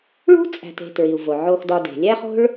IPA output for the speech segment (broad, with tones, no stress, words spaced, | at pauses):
ɭṳ˥t͡sʼæ̤˨te̤˨ tɹi˩u̯vo˩ ʕo˨xdɒ˨ de̤˩lʲæ˦χo̤˦ɭ